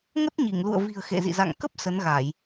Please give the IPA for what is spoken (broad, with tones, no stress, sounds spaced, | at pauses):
ŋ ə˦˥ t̚ ɲ i˧˩ ŋ l ṵ˧˨ ə̯ v i̤˨˩ ə̯ x ḛ˧˨ z ḭ˧˨ z a̰˧˨ ŋ k ə˦˥ p̚ s ə˨˦ n ɣ a˧˩˨ j